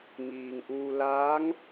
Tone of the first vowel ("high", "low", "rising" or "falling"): low